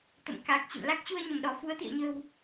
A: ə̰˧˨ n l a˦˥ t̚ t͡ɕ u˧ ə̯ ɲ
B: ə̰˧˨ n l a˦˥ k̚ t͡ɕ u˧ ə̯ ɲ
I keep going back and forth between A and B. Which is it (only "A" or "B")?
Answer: B